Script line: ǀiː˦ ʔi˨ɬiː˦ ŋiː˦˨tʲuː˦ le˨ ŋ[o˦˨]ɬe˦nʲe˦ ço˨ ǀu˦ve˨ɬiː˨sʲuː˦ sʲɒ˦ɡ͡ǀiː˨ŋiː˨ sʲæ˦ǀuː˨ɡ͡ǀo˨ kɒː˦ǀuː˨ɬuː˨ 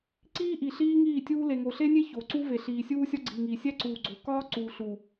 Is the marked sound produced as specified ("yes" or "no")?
no